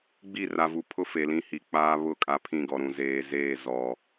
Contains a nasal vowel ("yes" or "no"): yes